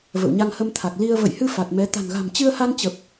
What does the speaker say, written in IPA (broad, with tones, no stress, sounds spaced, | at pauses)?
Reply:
v ə̰˧˨ w ɲ a˧ ŋ h ə˧ m t̪ʰ a˨˩ k̚ l i˧ ə̯ v ə̰˧˨ j h ɨ˧ f a˨˩ t̚ m ɛ˨˦ t̪ a̤˨˩ n ɣ a̤˨˩ m t͡ɕ ɨ˧ ə̯ h a˧ n t͡ɕ ə˨˩ p̚